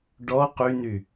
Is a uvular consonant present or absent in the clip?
present